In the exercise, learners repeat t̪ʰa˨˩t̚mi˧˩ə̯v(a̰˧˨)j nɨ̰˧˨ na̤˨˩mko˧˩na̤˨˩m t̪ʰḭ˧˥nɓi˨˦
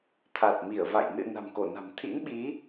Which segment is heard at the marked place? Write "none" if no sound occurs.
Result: a̰˧˨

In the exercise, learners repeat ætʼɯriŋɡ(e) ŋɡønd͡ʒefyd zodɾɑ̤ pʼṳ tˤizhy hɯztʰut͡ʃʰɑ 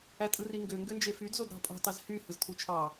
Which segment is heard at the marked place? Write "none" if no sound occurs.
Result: ø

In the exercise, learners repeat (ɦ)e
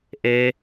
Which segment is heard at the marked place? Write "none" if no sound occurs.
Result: ʔ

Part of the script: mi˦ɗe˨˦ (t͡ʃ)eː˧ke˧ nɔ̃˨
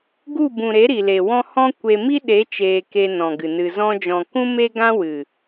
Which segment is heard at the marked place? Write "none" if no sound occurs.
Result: t͡ʃ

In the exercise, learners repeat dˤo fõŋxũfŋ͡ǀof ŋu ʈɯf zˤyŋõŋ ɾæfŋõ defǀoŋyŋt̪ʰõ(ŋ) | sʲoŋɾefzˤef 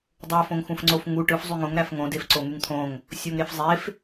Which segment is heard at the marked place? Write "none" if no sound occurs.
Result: ŋ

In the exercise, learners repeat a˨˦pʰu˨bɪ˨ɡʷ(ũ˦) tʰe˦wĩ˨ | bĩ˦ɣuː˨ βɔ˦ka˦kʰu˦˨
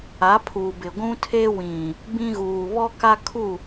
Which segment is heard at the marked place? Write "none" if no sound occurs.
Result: ũ˦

